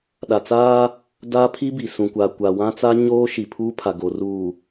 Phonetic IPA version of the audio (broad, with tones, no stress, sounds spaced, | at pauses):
ɗ a˨ t͡s aː˦ | d a˦ pʰ i˦ b i˨ s ũ˨ kʷ a˨ kʷ a˨ w ã˦ t͡s a˦ ɲ oː˦ ʃ i˨ pʰ uː˦ pʰ a˨ ɡ o˨ r uː˨